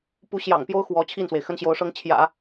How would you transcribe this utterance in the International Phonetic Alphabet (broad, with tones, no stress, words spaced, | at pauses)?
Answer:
pu˧˥ɕjɑ̰˨˩ŋpjo˥ʊ̯ xwɔ˧˥ t͡ɕʰi˥˩nswe˩ɪ̯ xə˥nɕjo˧˥ʊ̯ʂɤ˥ŋ t͡ɕʰjä̰˨˩˦